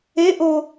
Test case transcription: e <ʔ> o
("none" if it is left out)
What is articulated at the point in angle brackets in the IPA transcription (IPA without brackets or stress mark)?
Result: ʔ